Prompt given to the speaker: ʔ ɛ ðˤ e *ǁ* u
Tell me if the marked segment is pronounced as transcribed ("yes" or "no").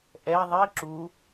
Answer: yes